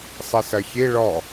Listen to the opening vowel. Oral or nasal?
oral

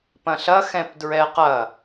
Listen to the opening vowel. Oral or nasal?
nasal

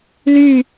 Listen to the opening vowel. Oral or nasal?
oral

